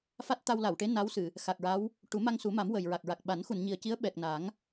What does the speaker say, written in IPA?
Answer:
f a˦˥ t̚ t̪ a˧ w l a˨˩˨ w ʈ e˧˥ n a˧˥ w s ɨ˨˩˨ | x a˨˩ k̚ ɹ a˧˥ w | ʈ u˨˩˦ m a˧ ŋ s u˨˩˦ m a˨˩˦ m w ə˨˩ j ɹ a˨˩ k̚ ɹ a˨˩ k̚ ɓ a˨˩˦ n x u˨˩˨ n ɲ i˨˩ ə̯ c i˧˥ ə̯ ɓ ɛ˨˩ k̚ n a˨˩˦ ŋ

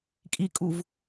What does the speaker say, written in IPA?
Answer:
kʼ i kʼ u v

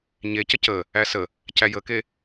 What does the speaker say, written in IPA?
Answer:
ɲ e c ə c ə | æ s ə | c æ j ə k e

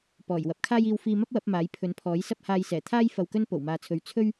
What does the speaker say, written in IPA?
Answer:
p ɔː˨˩ j w ɐ˨˥ p̚ kʰ aː˥ j iː˧ w f iː˧ m ɐ˥ p̚ w ɐ˨˥ p̚ m aː˨˥ j pʰ ɵ˨˥ n pʰ ɔː˨˥ j s ɐ˥ p̚ h aː˧ j s ɛː˨˩ t̪ʰ aː˥ j f ɐ˧ w k ɵ˥ n p o˨˩ w m aː˨ t͡sʰ ɵ˨˧ ɥ t͡sʰ ɵ˥ ɥ

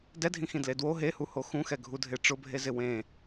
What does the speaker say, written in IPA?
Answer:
d ɛ dʱ ĩ x ĩ d l e d w o ɦ e h u h o x ũ x ɛ ɡʱ u dʱ e ʈ͡ʂ ʊ bʱ e z ɪ w ẽ

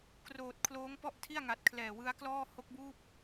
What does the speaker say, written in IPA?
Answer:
k r oː˨˩ t̚ kʰ l oː˦˥ ŋ p ɔ˥˩ ʔ tʰ i˥˩ a̯ ŋ a˨˩ t̚ kʰ l ɛː˨˩ w ɯ˦˥ a̯ k l ɔː˥˩ h o˦˥ k̚ b uː˥˩ p̚

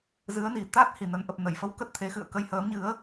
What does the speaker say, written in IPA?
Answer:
z ɨ˨˦ ə̯ n i˨˩ t̪ a˦˥ t̚ h i˨˩ n ə˨˦ n ʔ ə˨˩ p̚ n ə˧˩ j f ə˨˦ w k ə˦˥ t̚ t̪ʰ e˨˦ x ɨ̰˧˨ ə̯ k ə˧ j h əː˨˦ m ɲ ɨ˨˦ ə̯

